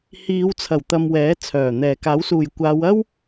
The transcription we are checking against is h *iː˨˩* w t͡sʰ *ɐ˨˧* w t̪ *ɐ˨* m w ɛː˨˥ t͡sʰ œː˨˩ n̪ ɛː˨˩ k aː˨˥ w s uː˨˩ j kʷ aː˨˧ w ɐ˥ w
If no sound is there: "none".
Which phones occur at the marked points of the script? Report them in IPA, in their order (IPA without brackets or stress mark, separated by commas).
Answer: iː˨˧, ɐ˨˩, ɐ˨